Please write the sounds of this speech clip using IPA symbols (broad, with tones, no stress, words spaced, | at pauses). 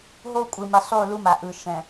ɦo˦kʷʼɯ˨ mi˨sˤu˦˨lu˦ma˨ ʔɯ˨ ʃɛ̃˨